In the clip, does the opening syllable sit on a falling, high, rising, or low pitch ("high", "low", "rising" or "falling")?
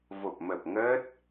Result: low